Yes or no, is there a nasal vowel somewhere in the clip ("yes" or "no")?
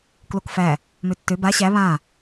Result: yes